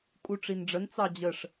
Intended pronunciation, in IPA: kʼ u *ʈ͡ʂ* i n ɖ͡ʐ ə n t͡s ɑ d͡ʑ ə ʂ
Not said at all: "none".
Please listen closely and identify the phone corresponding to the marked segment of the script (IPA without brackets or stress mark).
ʈ͡ʂ